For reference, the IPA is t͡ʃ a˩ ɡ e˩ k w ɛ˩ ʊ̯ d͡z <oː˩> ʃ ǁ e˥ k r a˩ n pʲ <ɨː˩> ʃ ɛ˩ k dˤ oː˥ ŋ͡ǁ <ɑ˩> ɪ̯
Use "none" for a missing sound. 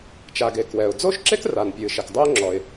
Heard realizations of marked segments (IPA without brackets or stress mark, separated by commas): oː˥, ɨː˩, ɔ˩